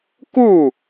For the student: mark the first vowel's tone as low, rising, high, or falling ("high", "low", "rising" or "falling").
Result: falling